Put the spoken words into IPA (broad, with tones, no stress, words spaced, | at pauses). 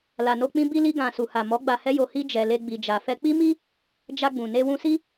la˨no˧k͡pĩ˦ bi˧li˧ɡã˨ su˨ha˨mɔ˨˦ ɡ͡ba˧hɛ˦jo˧hi˦ d͡ʒɛ˧le˦ɡ͡bi˧d͡ʒa˧ fɛ˧k͡pi˦mi˦ | d͡ʒa˧ɡ͡bũ˨ ne˧wũ˧si˦